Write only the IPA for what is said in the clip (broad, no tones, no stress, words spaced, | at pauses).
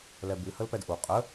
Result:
lɛbɨ həlpɛdʔu qʼə